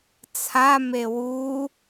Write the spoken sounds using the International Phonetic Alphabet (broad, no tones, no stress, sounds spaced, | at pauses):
t͡sʰ a m e w u